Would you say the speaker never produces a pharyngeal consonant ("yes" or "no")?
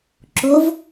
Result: yes